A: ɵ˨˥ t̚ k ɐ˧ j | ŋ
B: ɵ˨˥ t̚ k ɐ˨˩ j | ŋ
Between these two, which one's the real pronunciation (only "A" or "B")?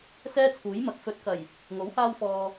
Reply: B